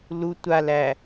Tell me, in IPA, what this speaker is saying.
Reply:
l u tʷ a l æ

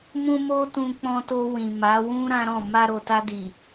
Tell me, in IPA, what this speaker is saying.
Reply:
m ũ˦ m o˦ t ũ˧ k͡p ɔ̃˧ t o˧ w ĩ˨ m a˨˦ w ũ˦ ɾ ã˦ ɾ ɔ̃˦˨ m a˧ ɾ o˨ t a˧ d i˨

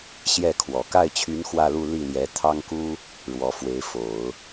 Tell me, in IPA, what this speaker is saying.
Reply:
ɕ j ɛ˥˩ kʰ w ɔ˨˩ k a˥˩ ɪ̯ t͡ɕʰ y˧˥ n x w ä˥˧ l u˥˧ l i˥˩ l j ɛ˧˥ t̪ʰ ɑ˥ ŋ k u˥ | ɻ w ɔ˧˥ f w e˧˥ ɪ̯ f o˨˩˦ ʊ̯

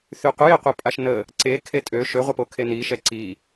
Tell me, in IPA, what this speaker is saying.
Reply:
θ y qʷ ə j e qʷ e pʼ a ʃ n ə | ǀ e kʰ e tʼ ø ʃ ø ʁʷ ə p o kʰ e n i ʃ ɛ ǀ i

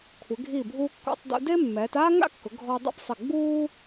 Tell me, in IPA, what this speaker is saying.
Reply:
kʷʰ ɪ˩˧ ɡʱ i˧˩ bʱ uː˧ kː ɔ̰˧ tˤ d ṵ˧ d e˥ mː ɛː˩˧ t aː˥ ŋ a̰˥ kː ʊ˩˧ ɡʱ ɔ˧ dˤ ɛ̰˥ p sˤ ɪ˧˩ ɡ͡b uː˥

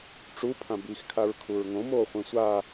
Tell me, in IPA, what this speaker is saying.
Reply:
ʈ͡ʂ u pʰ ã b i x kʰ a ɹ kʰ u ɹ ŋ õ m oː χʷ ẽ sʷ a

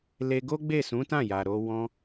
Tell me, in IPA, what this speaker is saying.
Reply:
l e˧ ɡ o˦ ɡ͡b e˦˨ s ũ˨˦ t ã˦˨ j a˨ ɾ o˧ w ɔ̃˧

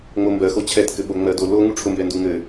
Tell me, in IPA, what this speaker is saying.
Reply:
ŋ͡m o m b ɜ x o t͡ɕʰ ɛ t k ɘ ɓ o ŋ͡m ɜ d o l o ŋ u ʈ͡ʂʰ ʊ m b ɛ n d u ŋ ɘ

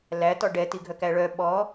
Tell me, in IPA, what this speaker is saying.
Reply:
l æ t ɔ ɖ ɛ t i ɡʱ œ k æ ɭ œ ɓ ɔ

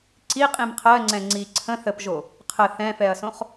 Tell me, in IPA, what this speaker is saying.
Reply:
ǀ i qʼ ĩ m qʰ ɜ ŋ͡ǀ ɛ̃ ŋ͡ǀ i ǀʰ ə̃ θ ə p ʒ o | qʰ ə θ ɛ̃ f ɛ ɐ̯ s õ χ

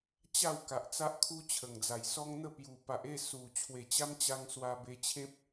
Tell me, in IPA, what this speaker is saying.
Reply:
t͡ɕ a˥˧ w k a˨ ʔ t͡s a˦ ʔ kʰ u˦ t͡ɕʰ ə˨˩ ŋ d͡z a˨˩ j s ɔ˦ ŋ n̪ ə˥˧ p j u˨˩ p a˨ ʔ e˥˧ s u˨˩ t͡ɕʰ w e˨˩ t͡ɕ a˦ m t͡ɕ a˧ ŋ s w a˧ b e˧ t͡ɕʰ ẽ˦ p̚

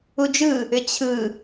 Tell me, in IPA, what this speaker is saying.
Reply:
u d͡ʒ ɯ | ʏ t͡ɕʰ ɯ

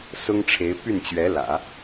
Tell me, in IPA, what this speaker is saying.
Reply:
s ʊ˥ ŋ ʈ͡ʂʰ e˧˥ ɪ̯ p y˥˩ n t͡ɕ ɥ ɛ˧˥ l ä̰˨˩˦

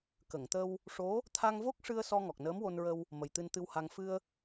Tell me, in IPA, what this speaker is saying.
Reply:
k ə˨˩˨ ŋ t̪ ə˧ w | ʂ o˧˥ | t̪ʰ a˧ ŋ v o˦˥ k̚ ʂ ɨ˧ ə̯ s ɔ˧ ŋ ɔ˨˩ k̚ n əː˧˥ m w o˧ n ɹ ə˧ w | m ə˨˩ j t̪ ɨ˧ n t̪ ɨ˧ w h a˧ ŋ f ɨ˧ ə̯

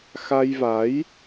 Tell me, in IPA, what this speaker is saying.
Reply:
x a˧ j v a˨˦ j

